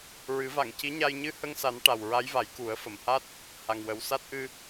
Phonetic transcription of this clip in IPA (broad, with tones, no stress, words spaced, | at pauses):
ɹɨ˨˩˦va˨˩˨ŋci˧˥ɲa˧j ɲɨ˧hə˧ŋsa˨˩˦n ʈa˨˩wɹa˧˥jva˨˩˦j ku˨˩˦ə̯fə˨˩˨mha˦˥t̚ | ha˨˩ŋwə˨˩wsa˦˥t̚ʔɨ˧